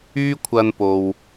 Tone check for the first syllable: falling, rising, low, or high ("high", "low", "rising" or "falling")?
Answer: high